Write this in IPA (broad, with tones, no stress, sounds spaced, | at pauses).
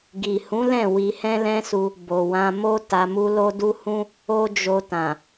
ɡ i˨ h ũ˨˦ l ɛ̃˦˨ w i˧ h ɛ̃˦ l ɛ̃˦ s u˧ | b o˨ w ã˧ m o˦ t a˧ m u˦ l o˦ d u˦ h ũ˦ | o˦ d͡ʒ o˧ t ã˨